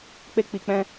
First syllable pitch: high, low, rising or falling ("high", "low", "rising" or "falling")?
high